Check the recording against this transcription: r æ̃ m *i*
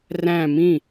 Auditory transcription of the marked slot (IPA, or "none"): ĩ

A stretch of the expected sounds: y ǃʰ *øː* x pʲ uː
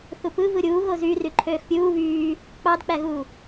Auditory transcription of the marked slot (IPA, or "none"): øː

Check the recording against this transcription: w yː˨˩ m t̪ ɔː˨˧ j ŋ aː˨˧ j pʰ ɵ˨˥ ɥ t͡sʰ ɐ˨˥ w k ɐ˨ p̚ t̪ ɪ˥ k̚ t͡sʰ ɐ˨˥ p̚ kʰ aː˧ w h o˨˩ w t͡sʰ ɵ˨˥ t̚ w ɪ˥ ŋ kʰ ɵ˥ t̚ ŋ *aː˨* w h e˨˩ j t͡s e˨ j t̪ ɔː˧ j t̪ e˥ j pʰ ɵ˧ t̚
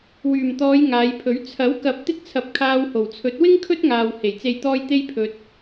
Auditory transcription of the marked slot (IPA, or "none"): aː˨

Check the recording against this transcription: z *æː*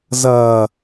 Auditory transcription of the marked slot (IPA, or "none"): ɐː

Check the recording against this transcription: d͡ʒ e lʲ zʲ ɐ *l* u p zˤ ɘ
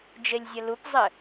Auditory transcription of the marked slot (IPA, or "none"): l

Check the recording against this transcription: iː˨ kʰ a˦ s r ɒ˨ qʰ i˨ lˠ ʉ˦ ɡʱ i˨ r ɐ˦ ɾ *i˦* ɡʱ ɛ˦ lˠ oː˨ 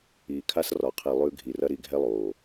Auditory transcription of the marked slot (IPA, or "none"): i˦˨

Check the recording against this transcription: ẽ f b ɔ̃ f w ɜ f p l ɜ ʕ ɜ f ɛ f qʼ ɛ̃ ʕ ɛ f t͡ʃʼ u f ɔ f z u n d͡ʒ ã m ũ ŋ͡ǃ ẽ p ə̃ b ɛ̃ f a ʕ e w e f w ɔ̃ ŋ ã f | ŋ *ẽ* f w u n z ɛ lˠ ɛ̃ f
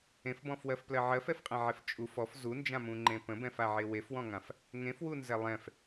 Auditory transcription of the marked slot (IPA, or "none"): ẽ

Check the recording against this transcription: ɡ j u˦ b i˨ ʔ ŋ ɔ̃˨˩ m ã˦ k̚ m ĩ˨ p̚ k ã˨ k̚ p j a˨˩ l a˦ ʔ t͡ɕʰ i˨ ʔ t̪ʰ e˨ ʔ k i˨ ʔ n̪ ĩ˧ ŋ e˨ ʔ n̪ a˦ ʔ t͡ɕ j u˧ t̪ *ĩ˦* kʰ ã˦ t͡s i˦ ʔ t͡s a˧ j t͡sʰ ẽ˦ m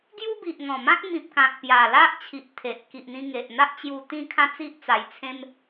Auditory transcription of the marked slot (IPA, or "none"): ĩ˦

